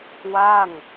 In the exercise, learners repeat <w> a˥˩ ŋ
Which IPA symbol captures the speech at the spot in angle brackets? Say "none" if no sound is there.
w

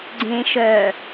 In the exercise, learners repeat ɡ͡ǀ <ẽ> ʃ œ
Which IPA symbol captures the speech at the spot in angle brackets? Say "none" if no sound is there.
ẽ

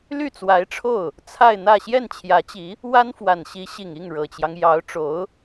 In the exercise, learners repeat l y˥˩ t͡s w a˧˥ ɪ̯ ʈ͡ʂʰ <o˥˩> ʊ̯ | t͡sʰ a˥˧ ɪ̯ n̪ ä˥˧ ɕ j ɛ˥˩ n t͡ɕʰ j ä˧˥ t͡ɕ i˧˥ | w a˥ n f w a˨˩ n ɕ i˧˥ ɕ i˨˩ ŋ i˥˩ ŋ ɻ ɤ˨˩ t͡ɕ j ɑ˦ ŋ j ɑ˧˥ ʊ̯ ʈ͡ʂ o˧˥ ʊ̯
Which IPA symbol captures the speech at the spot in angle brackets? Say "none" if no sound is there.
o˥˩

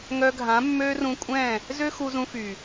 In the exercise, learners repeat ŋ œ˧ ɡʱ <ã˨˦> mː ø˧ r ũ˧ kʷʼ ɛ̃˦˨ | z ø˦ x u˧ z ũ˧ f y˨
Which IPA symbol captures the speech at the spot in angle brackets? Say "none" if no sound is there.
ã˨˦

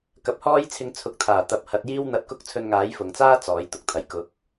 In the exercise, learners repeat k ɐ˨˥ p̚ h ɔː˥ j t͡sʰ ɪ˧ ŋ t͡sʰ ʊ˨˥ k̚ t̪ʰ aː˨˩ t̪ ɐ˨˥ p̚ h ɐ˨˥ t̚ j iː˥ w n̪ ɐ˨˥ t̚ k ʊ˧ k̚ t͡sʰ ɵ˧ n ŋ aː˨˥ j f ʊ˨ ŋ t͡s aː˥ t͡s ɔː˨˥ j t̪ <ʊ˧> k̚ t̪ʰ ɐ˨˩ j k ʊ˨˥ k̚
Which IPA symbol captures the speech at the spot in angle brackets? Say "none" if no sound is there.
ʊ˨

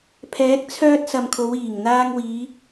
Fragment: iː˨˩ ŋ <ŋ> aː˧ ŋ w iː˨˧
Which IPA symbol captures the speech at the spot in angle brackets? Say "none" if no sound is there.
n̪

